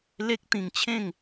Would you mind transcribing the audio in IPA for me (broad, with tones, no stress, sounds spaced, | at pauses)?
l e˦ k̚ t̪ ĩ˧ ŋ t͡ɕʰ ẽ˥˧ ŋ